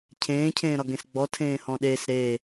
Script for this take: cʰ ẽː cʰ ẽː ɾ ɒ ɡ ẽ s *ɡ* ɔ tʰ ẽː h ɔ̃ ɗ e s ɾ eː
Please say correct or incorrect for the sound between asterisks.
incorrect